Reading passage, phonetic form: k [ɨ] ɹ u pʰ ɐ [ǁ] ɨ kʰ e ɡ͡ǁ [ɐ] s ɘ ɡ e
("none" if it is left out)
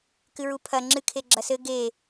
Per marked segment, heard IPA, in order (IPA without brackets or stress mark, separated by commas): ɨ, ŋ͡ǁ, ɐ